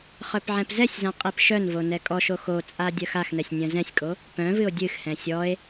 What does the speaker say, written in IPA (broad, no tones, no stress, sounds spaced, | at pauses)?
χ œ p ʕ ɛ̃ p z ɛ sʲ z ã qʼ i p ʃ œ n v o n ɛ kʼ ɔ ʃ o x o t͡sʼ a dʲ œ x a x n ɛ sʲ nʲ œ̃ z ɛ̃ sʲ kʼ o | p œ̃ v ɨ o̯ dʲ ɨ x h ɛ̃ sʲ ɔ e̯